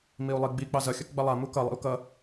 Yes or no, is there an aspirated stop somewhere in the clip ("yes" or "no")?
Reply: no